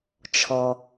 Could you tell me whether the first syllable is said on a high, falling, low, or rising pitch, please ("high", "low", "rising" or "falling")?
low